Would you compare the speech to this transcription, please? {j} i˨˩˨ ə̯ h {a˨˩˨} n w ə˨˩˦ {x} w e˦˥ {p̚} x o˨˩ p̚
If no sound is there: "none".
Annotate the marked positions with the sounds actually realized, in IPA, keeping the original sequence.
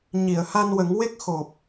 ɲ, a˧, ŋ, k̚

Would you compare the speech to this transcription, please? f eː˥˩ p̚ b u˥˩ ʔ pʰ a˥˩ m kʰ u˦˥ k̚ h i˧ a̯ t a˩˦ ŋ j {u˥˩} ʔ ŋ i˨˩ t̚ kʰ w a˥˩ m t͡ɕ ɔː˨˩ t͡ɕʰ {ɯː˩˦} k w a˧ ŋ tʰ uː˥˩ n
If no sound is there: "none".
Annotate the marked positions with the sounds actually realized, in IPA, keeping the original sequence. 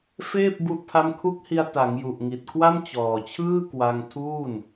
u˨˩, ɯː˥˩

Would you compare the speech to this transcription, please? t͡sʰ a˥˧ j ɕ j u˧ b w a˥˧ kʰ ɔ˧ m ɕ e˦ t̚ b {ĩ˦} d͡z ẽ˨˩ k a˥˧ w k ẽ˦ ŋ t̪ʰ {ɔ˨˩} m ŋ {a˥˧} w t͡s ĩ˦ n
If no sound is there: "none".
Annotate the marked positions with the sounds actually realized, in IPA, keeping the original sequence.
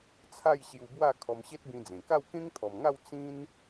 ĩ˧, ɔ˨˩, a˥˧

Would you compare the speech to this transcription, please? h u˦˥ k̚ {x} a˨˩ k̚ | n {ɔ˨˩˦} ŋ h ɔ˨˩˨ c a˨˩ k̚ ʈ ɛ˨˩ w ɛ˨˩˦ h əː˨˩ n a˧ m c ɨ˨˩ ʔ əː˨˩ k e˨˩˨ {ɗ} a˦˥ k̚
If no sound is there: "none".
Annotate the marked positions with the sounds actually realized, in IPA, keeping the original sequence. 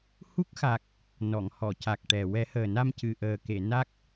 x, ɔ˨˩˨, n

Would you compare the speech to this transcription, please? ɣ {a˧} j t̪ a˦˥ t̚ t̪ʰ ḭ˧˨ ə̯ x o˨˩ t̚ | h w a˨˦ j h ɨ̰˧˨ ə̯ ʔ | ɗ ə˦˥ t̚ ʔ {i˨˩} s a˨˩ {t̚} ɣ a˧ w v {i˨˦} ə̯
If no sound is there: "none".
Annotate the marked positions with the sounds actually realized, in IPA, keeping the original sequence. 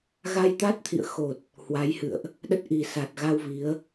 a˧, i˨˩, t̚, i˨˦

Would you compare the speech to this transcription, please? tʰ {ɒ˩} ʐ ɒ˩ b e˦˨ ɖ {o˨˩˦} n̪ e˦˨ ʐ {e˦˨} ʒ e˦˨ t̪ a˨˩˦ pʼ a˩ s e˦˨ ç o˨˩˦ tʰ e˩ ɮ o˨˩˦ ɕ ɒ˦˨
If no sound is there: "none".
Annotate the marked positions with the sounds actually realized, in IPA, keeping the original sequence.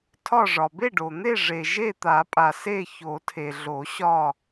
ɒ˦˨, o˩, e˩

